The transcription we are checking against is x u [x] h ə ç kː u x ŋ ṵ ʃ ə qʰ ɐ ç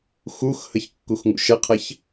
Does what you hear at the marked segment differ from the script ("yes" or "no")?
no